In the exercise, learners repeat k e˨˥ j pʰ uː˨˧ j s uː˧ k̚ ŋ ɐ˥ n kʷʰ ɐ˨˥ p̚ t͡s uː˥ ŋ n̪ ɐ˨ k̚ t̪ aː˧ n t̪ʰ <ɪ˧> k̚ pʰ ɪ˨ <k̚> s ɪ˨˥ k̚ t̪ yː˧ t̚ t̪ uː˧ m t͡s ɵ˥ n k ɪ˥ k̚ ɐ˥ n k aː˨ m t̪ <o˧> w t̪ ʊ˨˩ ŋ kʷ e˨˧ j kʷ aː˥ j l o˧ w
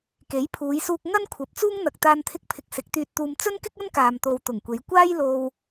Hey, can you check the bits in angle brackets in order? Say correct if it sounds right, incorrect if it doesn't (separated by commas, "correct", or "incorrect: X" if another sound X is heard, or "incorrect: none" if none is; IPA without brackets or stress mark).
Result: correct, correct, incorrect: o˨